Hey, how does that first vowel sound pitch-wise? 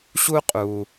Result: high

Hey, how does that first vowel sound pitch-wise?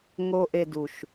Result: high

